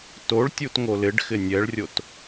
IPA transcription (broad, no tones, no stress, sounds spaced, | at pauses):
t o ɭ tʲ u t ŋ o l ɪ ɖ x ɪ nʲ ɛ ɭ rʲ o t